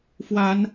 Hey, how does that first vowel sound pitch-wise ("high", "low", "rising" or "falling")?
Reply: rising